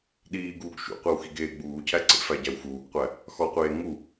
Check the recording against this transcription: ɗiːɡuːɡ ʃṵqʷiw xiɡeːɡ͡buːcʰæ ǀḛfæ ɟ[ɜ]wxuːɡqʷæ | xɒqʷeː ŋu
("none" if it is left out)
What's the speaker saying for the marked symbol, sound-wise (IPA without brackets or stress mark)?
æ